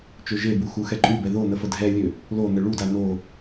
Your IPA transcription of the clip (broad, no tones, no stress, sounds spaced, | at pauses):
t͡ʃ ø ʒ e b u x u x ɛ ǃʼ y b ɛ ð o n̪ ə f ə dʱ ɛ lʲ ø | l o n̪ ə ɭ u d a n o